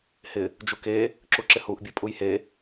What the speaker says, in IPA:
hɪ | d͡ʒuke | ǁuǁɪhuʔ bʲepʼujhe

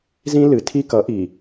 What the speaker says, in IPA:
zĩ˦ lɨ˨tʰi˦ kʌ˨˦ʔi˨

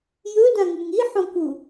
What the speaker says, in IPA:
jɵdãŋɨŋ iħõku

